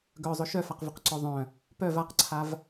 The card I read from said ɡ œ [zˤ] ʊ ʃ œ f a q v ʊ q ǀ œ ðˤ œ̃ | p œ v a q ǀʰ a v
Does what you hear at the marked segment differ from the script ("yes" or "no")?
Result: no